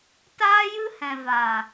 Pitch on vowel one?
high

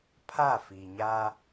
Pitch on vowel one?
falling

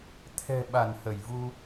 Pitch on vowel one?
low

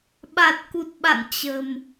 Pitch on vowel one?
low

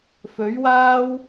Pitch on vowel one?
rising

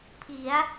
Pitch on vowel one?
rising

